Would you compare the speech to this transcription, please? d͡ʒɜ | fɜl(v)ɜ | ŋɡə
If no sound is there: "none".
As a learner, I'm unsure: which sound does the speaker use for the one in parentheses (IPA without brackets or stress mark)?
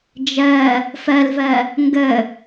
v